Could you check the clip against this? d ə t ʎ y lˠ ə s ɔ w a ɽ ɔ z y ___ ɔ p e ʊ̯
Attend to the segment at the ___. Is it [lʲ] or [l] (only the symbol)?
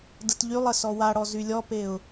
lʲ